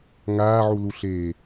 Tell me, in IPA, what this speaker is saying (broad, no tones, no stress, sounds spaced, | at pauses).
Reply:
ŋ aː ʕ u l u ɬ eː